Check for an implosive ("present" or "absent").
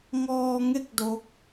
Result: absent